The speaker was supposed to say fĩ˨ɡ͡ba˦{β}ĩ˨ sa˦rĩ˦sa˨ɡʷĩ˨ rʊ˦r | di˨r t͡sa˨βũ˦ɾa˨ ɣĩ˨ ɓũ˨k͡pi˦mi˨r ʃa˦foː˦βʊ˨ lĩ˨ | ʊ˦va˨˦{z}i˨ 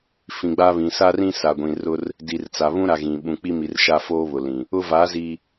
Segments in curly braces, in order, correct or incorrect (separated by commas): correct, correct